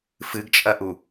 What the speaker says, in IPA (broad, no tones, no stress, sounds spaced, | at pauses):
f ɨ ɡ t͡ʃʼ ɐ ʔ u